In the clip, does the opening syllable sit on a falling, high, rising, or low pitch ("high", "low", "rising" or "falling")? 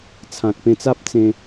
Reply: low